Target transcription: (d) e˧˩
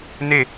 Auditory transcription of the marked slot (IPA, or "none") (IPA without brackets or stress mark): n